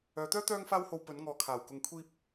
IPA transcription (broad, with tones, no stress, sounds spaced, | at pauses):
œː˨˧ t̪ œː˥ t̪ œː˥ ŋ f aː˥ w h o˧ w p ɵ˨˧ n ŋ ɔː˨ kʰ aː˨˩ w k ʊ˨ ŋ kʷʰ iː˧ p̚